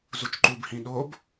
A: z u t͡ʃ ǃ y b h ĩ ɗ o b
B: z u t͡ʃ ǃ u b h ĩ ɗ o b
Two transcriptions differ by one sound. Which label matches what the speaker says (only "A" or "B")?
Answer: B